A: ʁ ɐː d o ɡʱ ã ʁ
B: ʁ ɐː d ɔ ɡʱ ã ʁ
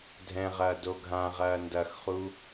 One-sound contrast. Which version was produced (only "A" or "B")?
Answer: A